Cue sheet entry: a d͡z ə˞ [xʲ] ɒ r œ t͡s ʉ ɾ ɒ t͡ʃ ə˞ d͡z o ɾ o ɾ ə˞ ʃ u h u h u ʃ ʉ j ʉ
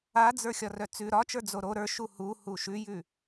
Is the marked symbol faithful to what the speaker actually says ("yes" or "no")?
yes